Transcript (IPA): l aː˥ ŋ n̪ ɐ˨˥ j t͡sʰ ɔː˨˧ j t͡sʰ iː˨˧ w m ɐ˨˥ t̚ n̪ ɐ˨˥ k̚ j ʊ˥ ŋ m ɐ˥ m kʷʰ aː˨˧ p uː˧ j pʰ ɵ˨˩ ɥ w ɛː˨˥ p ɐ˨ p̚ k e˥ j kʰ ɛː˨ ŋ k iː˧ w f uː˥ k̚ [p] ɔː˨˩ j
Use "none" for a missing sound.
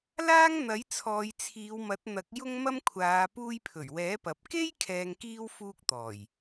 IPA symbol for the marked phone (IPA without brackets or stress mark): t̪